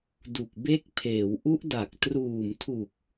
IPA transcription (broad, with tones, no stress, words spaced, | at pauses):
du˨˩k̚be˦˥k̚pʰeː˩˦w ʔu˦˥ʔda˨˩k̚ truː˨˩mtʰu˨˩k̚